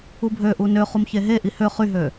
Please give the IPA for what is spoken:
u bʱ ø ʔ u n ø χ u m ç e ɦ e ʔ i h ø χ y ɦ ø

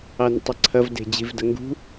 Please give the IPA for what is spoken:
ɑ n ə̰ tˤ ɐ ǀʰ ɐ v d e̤ d͡ʑ i v d ə ŋ ɡ ṳ

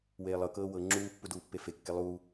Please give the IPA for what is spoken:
w eː lˠ ɤ k ɤː w ɤ ŋ͡ǁ uː pː u d uː pː e f e kː e lˠ uː

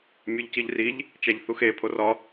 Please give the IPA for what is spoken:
mʲ u ʎ c i ʎ r i ʎ | t͡ʃ æ ʎ θ u x e pʰ o r ɒ

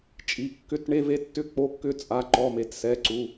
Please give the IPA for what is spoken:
t͡ʃʼ i˩˧˩ kː ʏ˧˥˧ t ɳ e˧˥˧ v e˧˥˧ tː ʏ˧˥˧ k͡p o˧˥˧ kː ʏ˧˥˧ t͡sʼ a˩˧˩ ǃ ɔ˩˧˩ m e˩˧˩ t s ɛ˩˧˩ ǀ u˩˧˩

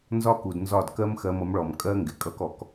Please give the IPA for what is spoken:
n z ɒ˦ k u˨ d n z ɒ˦˨ d k ɜ˦ m x ɜ˧ m ʌ˨˦ m ɭ ɔ˨ m kʼ ɜ˦ ŋ ɡ ɪ˨ kʼ ʌ˦ k ɔ˧ k

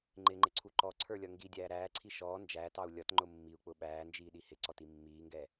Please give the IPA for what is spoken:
ŋ͡ǃ ɪ ŋ͡ǃ ɪ ǀʰ u ǃ ɔ ǀʰ ə˞ lʲ ʌ ŋ ɡ i dʲ æː ɾ æː ǀʰ i ʃ ɔː n d͡ʒ æː t ɑ u̯ lʲ ʌ t ŋ͡ǃ ʊ mː i u̯ k͡p ʊ ɓ æː n d͡ʒ iː ɗ i h ɪ ǀ ɔ t i mː iː ŋ ɡ ɛ

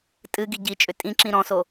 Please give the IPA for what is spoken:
tʼ ɨ ɡ i ɟ i t͡ʃʼ ʏ tʼ ĩ ǁ ĩ ɾ ɔ̃ s o

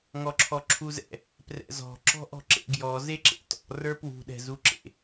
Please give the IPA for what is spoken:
ŋ ɔ ǁʰ ɔ ǁʰ u z ɛ̰ | p r ɛ̰ z ɔ̤ ǁ ɔ̤ ʔ ɔ̤ ǁ ḛ ɡ j ɔ z e ǁ ḛ t ɔ̰ r ə˞ p w ṳ ɗ ɛ̤ z u ǁ ḛ

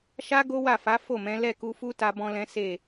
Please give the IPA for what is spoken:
ʃ a˦ ɡ o˦ w a˦˨ f a˨˦ f o˦˨ m ɛ̃˨˦ l ɛ˦˨ k u˧ f u˦ t a˧ b ɔ̃˦ l ɛ̃˦ s e˦˨

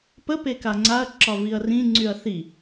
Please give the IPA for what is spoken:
p ə p e k a ŋ͡ǀ a ɐ̯ ǁ ɒ v i ɐ̯ r ĩ ŋ͡ǀ y ɐ̯ θ i

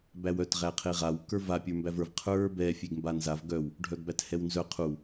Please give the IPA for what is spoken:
b æ w œ t ʁ æ qʰ e ʁ a w k ə˞ v a pʲ ə˞ m b æ v ə˞ v qʰ ə˞ b ɛ fʲ e ɡ m b a n z a v ɡ œ w | ɖʱ œ ɡ b æ t h ɛ w n z œ qʰ u

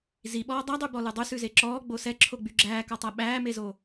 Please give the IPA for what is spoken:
z i ɓ ɔː dˤ æ dˤ y b ɔ l ʉ dˤ ʉ s ʉ z e ǁ ɔː ɡ͡b o s ɛ ǁʰ o ɡ͡b y ɡ͡ǁ æː k ɔ tˤ æ ɓ æː m e z o

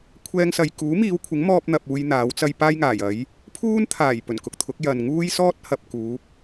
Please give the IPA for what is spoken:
kʷʰ ɛː˥ ŋ s ɐ˧ j k uː˨˥ m iː˨˧ w kʷʰ ɪ˨˥ ŋ m ɔː˥ p̚ n̪ ɐ˧ p̚ uː˧ j n̪ aː˨˥ w t͡s ɐ˥ j p aː˥ j ŋ aː˨˩ j ɐ˨˥ j | pʰ uː˥ n t̪ʰ aː˨˩ j p ɵ˨˩ n k ʊ˧ k̚ t̪ʰ ʊ˨˥ k̚ j ɐ˨ n ŋ uː˥ j s ɔː˥ t̚ h ɐ˨ p̚ k uː˨˥ p̚

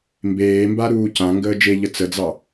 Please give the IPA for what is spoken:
m b eː m b a ɾ uː c ã ŋ ɡ əː d͡ʒ e ʎ ə t͡s ə d͡z ɑ

